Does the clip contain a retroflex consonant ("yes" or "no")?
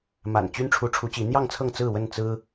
yes